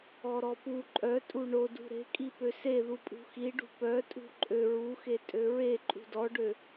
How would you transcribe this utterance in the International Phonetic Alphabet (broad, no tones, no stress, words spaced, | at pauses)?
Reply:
ɔɾɔpu ǃʼœtʼu ɳodṳ ɾe̤kʼi pøseðu pʼṳxiɖṳ pœtʼṳ ǃʼø ɹuxe tʼøɹe ǃʼṳdɔɖø